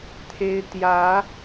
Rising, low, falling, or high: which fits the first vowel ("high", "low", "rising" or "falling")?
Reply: high